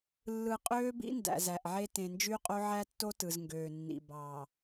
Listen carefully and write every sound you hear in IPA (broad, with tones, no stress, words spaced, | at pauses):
lːɯ˨ qʼøː˦bḭ˦ ndæ̰˨zæ˨ʔʕe˦ tẽ˨nd͡ʒy˦qʼo˦ ʕæ˦ tːo˦ tɯ˨z ŋɡøː˨nːḭ˨ bɑː˨